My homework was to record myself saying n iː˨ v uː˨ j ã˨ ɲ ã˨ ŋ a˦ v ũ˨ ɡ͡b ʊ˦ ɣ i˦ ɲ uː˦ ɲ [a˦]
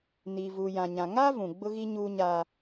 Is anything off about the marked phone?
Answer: yes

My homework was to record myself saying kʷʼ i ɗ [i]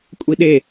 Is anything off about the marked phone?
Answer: yes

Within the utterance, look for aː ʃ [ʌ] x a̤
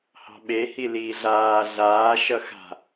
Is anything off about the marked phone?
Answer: no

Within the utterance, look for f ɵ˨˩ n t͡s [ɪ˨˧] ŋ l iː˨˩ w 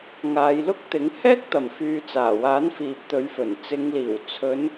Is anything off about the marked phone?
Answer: no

